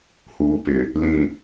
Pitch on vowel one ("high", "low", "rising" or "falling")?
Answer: low